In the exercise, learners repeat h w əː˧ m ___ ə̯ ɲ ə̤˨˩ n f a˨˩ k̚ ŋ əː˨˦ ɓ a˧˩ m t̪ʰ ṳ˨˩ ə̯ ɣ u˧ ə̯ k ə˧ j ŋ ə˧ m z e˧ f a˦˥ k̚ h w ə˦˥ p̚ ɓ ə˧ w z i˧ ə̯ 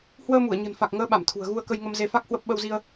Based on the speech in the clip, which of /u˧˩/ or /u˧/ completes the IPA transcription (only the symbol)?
u˧˩